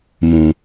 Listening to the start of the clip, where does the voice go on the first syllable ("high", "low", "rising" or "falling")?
low